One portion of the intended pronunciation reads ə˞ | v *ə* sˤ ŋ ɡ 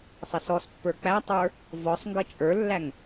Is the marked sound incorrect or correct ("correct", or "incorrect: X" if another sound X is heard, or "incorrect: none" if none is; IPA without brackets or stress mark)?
incorrect: ɔ